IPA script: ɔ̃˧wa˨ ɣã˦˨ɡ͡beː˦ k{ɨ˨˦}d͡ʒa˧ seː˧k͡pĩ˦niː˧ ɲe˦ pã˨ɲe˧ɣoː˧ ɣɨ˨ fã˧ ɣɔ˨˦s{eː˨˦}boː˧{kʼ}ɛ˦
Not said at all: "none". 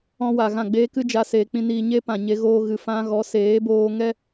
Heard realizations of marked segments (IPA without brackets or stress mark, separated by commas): ɨ˦, eː˨˦, ŋ